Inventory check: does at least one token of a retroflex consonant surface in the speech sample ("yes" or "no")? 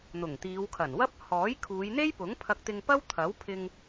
no